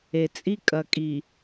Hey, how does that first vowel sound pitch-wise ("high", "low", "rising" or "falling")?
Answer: low